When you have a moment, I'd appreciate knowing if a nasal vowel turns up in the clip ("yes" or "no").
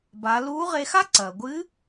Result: no